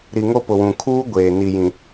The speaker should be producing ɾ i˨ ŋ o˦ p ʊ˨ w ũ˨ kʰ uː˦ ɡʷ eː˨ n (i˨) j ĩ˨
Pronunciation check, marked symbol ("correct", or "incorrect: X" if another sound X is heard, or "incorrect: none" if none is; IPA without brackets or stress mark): correct